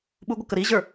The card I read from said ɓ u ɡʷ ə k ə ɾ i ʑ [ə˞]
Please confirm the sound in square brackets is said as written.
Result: yes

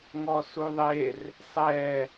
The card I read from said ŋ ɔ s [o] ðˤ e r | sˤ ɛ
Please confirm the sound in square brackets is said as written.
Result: no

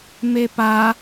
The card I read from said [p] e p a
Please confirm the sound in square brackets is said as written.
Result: no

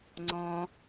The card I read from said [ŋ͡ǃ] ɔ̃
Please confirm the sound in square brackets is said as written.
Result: no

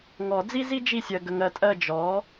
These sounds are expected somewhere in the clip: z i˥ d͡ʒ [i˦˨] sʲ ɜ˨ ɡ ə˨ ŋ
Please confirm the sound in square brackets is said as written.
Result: yes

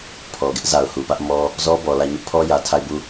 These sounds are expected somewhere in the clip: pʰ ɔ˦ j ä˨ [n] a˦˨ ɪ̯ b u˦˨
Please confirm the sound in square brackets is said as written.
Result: no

